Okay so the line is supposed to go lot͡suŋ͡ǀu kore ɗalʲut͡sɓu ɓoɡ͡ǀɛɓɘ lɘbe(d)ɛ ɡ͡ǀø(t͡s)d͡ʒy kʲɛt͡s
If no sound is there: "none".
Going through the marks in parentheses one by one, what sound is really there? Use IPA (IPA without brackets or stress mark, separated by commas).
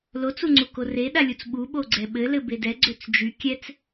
d, t͡s